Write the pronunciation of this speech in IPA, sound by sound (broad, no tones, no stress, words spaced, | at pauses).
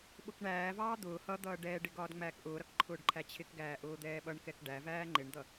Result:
ɓʊkɳæːvɑː d̪ʊː hʌ d̪ʌːɖɛːɖɪ ɡɒːdŋ͡mæːkʔʊːɾʌk ǃʰʊːɖǃʰæt͡ɕʰɪkɡæː ʔʊːd̪ɛːɓʌɳkɛk ɖævæː ŋ͡ǃɪɳd̪ʌ